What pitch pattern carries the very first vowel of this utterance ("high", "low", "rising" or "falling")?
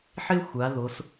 high